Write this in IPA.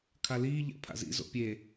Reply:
kʰaliː ʎa̰pʰa̰zḭ zo̰pʲe

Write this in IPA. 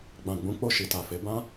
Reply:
ɡ͡bã˨ɡ͡bũ˨˦ k͡po˦˨ʃi˨ta˨fe˨˦ bã˦

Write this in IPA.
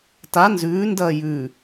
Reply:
ta nzʉːndɐː jʉ

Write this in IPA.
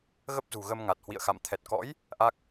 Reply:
ɣə˦˥p̚zṳ˨˩ɣə˧mŋa˨˩t̚ hwḭ˧˨ə̯xa̰˧˨m t̪ʰɛ˨˩t̚kɔ̰˧˥j | ʔa˦˥k̚

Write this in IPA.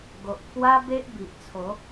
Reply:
ɡo˨ʔpʰwa˦ be˦ʔ bi˨ʔt͡sʰo˨˦

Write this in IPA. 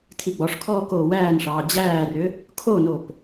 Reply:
tʰiɡ͡bɔʂkʰɔː koːwæːnʂɑː d͡ʑæːrʏ | kʰonop

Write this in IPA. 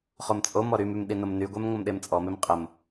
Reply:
χomt͡sʼomɔ ɾymym ɗinomnyɡʷɛm ŋʷəmɗemt͡sʼɔmem qʼəm

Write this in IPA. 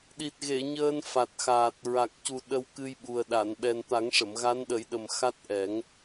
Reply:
ɗi˨˩t̚ɣe˨˩˨ ɲəː˧nfa˨˩t̚xaː˨˩t̚ ɹa˨˩k̚cu˨˩ ɗə˧wkɨ˧jɓu˨˩ə̯ ɗa˨˩˨nɓɛ˨˩nt̪a˨˩˦ŋ ʂə˨˩˨mɣa˧˥nɗə˨˩˦jɗə˨˩m xa˦˥t̚ʔɛ˨˩˦ŋ

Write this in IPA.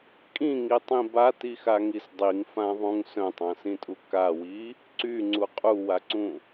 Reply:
kʼĩŋitˤĩ batixaŋis dˤiŋfãðˤũŋ sœ̃tˤãsĩtʼu kawi | ǀyŋ͡ǀu qʼuwaǀũ

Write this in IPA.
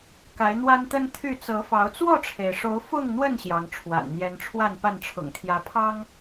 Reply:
ka˨˦ɪ̯n̪wa˦nt̪ə˦nt̪ʰy˥˨ t͡sɤ˨˦fɑ˨˦ʊ̯ t͡swɔ˥˨ʈ͡ʂʰe˩ɪ̯ʂo˨˦ʊ̯ fʊ˥˨ŋn̪wə˥˨n ɕjɑ˨˦ŋʈ͡ʂʰwa̰˨˩nn̪jɛ˦n ʈ͡ʂʰwa˥˨npa˥˨n ʈ͡ʂʰʊ̰˨˩ŋt̪ʰjä˨˦pʰɑ˦ŋ

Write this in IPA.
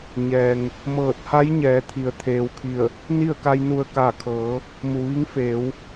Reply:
ɲɛː˩ŋ | mɤː˧˩t̚ha˧˥jɲɛː˩˧ t̪ʰi˩˧ə̯t̪ʰeː˩w kʰi˧˩ə̯ | ni˥˨ə̯ka˧jnu˧˩ə̯ kaː˧˩kʰɤː˩˧ | mu˩ʋi˧˥ŋ feː˩˧w

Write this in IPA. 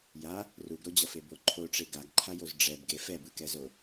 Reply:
ja | ruɡɾod͡ʑʌfe boǃʰoʈ͡ʂe ɡaɡǃʰajoz ɖ͡ʐɛbɡe fɛbɯkɛzo

